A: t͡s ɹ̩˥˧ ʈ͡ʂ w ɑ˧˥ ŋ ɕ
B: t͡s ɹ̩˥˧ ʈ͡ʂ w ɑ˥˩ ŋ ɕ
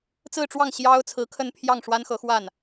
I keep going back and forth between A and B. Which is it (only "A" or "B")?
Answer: B